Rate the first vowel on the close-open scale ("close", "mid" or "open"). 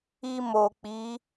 close